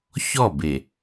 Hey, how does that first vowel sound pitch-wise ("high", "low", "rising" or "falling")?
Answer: falling